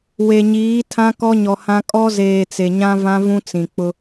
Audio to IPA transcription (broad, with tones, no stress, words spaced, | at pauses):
we˨ɲiː˨˦tʰã˦ kɔ˦ɲɔ˨hã˦ kʼɔ˦zeː˨ t͡se˨ɲã˦ vã˦vũ˦t͡sĩ˨k͡pʊ˦